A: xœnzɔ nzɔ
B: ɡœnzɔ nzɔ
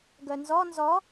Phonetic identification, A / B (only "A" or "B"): B